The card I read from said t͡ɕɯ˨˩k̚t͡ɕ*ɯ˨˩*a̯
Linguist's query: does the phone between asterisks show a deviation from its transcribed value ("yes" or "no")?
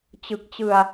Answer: yes